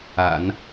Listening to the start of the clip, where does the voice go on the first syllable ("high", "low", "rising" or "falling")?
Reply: low